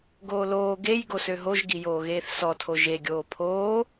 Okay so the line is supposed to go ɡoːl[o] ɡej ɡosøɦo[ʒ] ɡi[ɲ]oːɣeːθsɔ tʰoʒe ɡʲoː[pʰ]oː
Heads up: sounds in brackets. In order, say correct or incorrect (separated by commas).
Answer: incorrect, correct, incorrect, correct